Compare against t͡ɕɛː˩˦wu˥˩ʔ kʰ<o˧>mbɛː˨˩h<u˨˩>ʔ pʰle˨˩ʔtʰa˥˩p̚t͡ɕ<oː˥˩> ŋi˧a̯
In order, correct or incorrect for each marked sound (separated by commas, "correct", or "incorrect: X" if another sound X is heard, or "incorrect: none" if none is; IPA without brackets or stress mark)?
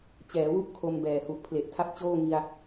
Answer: correct, correct, correct